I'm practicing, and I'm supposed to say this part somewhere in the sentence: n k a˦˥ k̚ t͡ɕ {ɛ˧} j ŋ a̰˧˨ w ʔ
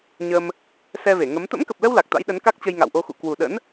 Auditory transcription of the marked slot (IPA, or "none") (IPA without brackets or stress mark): ə˧